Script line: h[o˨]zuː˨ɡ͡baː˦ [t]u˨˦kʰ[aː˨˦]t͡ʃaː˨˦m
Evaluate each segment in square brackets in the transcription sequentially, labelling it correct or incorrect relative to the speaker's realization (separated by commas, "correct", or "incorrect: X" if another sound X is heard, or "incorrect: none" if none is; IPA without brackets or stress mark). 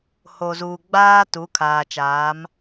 correct, correct, incorrect: aː˨